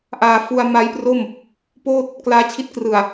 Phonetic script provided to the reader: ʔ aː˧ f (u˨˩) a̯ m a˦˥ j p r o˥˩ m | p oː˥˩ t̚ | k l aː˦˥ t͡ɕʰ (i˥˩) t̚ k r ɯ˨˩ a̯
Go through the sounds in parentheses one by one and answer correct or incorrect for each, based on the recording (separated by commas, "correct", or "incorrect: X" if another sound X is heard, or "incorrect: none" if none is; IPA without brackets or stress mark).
incorrect: u˧, incorrect: i˦˥